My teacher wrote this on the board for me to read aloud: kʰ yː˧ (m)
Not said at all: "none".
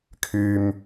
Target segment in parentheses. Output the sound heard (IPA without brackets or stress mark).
m